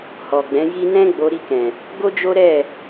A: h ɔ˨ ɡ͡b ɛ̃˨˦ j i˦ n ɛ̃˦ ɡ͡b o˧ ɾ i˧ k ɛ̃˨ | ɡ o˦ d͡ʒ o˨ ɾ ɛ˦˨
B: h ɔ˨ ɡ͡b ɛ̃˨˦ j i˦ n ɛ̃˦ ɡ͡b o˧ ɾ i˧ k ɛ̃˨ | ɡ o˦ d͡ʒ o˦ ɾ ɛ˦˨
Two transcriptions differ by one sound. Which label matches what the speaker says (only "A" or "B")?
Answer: B